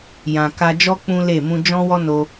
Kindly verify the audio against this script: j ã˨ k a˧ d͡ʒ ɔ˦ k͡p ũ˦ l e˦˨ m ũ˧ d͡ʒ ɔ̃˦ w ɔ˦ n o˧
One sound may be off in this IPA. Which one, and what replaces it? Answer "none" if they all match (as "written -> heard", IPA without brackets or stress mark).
none